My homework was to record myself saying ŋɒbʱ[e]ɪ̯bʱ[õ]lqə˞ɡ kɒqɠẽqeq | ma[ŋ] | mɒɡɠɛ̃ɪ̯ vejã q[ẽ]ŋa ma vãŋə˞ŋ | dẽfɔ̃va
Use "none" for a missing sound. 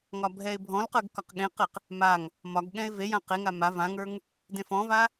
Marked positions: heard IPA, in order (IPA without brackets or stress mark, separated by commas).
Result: ɛ, ɔ̃, ŋ, e